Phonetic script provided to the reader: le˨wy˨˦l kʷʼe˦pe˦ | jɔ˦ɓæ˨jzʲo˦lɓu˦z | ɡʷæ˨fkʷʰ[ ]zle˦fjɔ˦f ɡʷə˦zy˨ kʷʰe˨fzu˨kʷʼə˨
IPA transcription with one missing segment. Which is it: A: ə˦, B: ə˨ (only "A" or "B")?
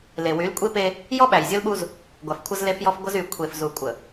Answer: A